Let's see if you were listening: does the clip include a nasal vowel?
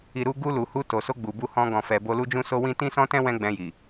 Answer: yes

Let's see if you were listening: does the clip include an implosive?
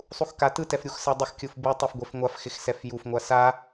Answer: no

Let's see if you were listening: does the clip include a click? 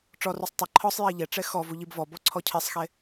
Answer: yes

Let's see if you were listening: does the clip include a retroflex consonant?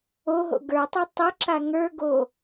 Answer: no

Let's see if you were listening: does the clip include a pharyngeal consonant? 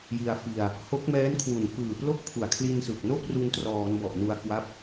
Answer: no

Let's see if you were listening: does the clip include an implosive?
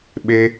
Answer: yes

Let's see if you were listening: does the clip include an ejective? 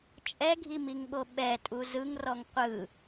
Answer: yes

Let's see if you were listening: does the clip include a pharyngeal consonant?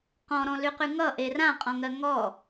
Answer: no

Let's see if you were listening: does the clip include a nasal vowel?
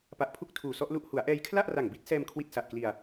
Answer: no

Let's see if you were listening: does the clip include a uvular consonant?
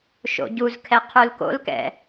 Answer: yes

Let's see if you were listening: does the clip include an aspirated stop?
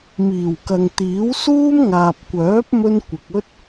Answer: no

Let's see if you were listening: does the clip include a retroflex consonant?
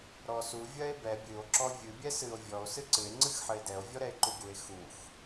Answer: no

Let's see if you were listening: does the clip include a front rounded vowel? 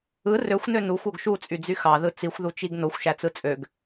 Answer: yes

